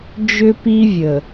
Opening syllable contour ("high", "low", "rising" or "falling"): high